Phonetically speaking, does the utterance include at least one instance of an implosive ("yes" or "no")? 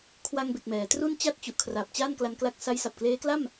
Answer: no